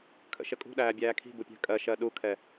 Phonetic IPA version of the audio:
kʰ ə̰ ʃ ə kʼ ṳ ɗ æː bʲ æː kʰ i̤ b u pʲ æ̤ kʼ ɜ ʃ ɜ ɗ u kʰ ɛ

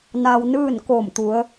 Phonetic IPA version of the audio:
n aː˧ w n ɯː˥˨ n k oː˧˩ m t̪ u˩˧ ə̯

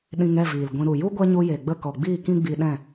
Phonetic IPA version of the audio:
ɗ ĩ˧ ŋ ɛ˦˨ v iː˨ l ɡʷ ĩ˧ ɾ u˨ j u˦ ɡʷ ɛ˦ ɲ u˧ j e˨ ɡ͡b ə˦˨ k ɔ˨ ɡ͡b iː˦˨ k ĩ˦ ɡ͡b i˧ ɗ ɛ̃˦˨

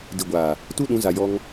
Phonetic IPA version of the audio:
d i˨ ɡʷ aː˨ | t u˦ ɗ ũ˨˦ z a˨ j ɔ˧ ŋ

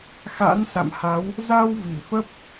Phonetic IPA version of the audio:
x a̰˧˥ n s a̰˧˨ m h a˨˦ w | z a˧ w v i˧˩ f ə˦˥ p̚

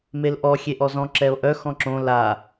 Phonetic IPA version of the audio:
m e l ʔ ɔ xʲ e ʔ ɔ z ɔ̃ ǁ ɛ o̯ ʔ œ x ɔ̃ ǁ õ l a

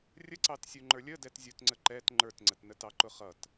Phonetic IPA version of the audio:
rʲ ə ǀ ɑ t sʲ u ŋ͡ǃ ə˞ lʲ ə d ɛ t zʲ u t ŋ͡ǀ ə ǃ ɛ t ŋ͡ǃ ə˞ t ŋ͡ǀ ə t n ə t ɑ ǃ ʊ χ ʌ t

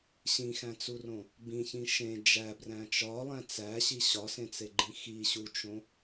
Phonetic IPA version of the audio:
ɕ ĩ x æ̃ t͡s u r õ | b ĩ ç ĩ ʃ ẽ d͡ʒ æ b r æ̃ t͡ʃ ɒ lˠ æ̃ t͡s æ ɕ i ɕ ɒ s ẽ t͡s e ɡ͡ǃ ĩ x i ɕ u t͡ʃ õ

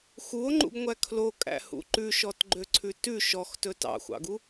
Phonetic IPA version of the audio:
x u o̯ ŋ͡ǃ ṵ ɡ ŋʷ æ kʰ l o kʼ æ̰ h ṵ ǃ ʉ ʃ ɔ t ɡ͡ǃ ø ǀʰ ʉ t ʉ ʃ ɔ x t ɵ t ɑ̰ xʷ ɑ̰ ɡ u

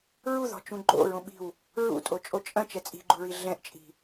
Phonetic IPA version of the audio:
ɹ u ð ɔ̤ t͡ʃ ũ ɡ͡ǃ o̰ ɹ õ ɓ i̤ w | ɹ ṵ tʼ o t͡ʃʼ o t͡ʃʼ ɐ̃ t͡ʃ ɛ t͡sʼ i̤ ɡ͡ǃ u ɹ i ɮ ɛ̃ ʔ t͡ʃʼ i̤

